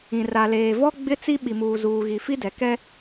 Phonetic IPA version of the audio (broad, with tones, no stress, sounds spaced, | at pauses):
ĩ˨ r a˨ l eː˨ v ɔ˦ ɡ͡b ɪ˦ t͡s i˦ ɓ i˨ m uː˨ z uː˨ ɣ i˨ f i˦ d ɛ˨ k ɛ˦